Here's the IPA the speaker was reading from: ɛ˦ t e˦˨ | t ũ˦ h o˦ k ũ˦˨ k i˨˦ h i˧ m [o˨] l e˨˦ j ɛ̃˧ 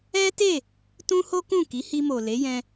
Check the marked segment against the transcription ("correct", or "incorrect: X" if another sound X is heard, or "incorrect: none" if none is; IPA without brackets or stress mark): correct